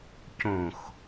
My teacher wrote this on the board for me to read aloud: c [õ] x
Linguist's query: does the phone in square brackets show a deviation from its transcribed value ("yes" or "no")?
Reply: no